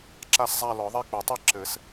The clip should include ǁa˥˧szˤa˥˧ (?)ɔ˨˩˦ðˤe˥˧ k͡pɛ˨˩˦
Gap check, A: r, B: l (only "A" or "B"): B